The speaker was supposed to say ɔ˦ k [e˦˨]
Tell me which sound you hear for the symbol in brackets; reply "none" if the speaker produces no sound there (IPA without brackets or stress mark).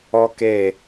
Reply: e˦˨